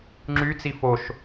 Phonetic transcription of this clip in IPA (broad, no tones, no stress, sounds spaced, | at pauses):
ŋ͡ǁ y t͡s i f o ʃ